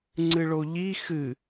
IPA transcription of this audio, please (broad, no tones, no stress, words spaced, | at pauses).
ŋ͡ǀɨɭoʎi xɨ